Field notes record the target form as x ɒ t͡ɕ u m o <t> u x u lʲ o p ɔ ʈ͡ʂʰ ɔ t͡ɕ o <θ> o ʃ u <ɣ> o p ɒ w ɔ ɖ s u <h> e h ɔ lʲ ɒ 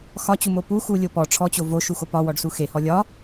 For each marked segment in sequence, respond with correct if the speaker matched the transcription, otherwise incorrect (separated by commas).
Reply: incorrect, incorrect, incorrect, incorrect